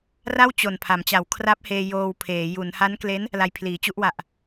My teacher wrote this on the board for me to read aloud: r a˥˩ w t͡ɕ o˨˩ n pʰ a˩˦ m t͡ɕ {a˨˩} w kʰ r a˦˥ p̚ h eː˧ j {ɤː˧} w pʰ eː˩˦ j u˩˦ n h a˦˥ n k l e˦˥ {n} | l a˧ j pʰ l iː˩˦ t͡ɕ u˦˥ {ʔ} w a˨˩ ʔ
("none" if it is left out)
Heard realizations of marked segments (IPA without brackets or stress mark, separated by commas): a˨˩, oː˧, n, ʔ